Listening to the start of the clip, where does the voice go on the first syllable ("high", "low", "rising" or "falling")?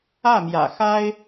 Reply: falling